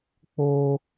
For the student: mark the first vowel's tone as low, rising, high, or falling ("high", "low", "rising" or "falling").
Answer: high